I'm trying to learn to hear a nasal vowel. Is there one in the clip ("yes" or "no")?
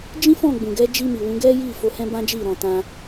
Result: yes